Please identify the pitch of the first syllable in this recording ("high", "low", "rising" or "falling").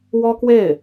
high